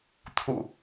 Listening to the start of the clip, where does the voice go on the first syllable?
low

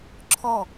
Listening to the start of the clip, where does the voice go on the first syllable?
falling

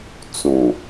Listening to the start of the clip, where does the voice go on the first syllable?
low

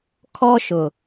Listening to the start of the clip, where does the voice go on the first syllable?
high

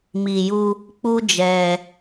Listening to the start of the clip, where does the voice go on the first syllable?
low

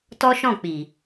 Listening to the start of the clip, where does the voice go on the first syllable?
high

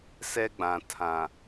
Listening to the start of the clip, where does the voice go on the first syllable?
high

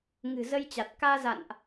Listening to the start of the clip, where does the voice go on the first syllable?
low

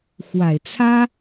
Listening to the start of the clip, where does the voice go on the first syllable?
low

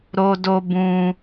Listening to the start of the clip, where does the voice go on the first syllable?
high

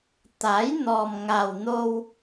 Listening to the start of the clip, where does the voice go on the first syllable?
rising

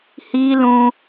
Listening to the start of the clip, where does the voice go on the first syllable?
high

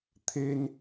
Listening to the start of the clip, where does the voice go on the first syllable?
high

